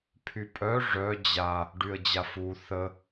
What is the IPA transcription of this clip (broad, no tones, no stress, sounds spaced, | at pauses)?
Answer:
pʰ y pʼ œ ʐ œ d͡ʑ a | ɖ y ə̯ d͡ʑ a f u θ ə